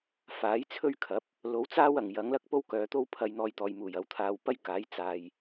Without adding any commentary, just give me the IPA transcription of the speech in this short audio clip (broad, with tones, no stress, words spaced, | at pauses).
faː˨˥jt͡sʰɵ˥ɥkʰɐ˨˥p̚ | lo˨˥wt͡saː˥wɐ˨˩ŋ jɐ˨˥ŋ lɐ˥k̚po˥wkœː˨˧t̪o˥w pʰɐ˧jn̪ɔː˧jt̪ɔː˨j muː˨˩jɐ˨˥wt̪ʰaː˧w pɐ˥jkaː˨˥j t͡saː˧j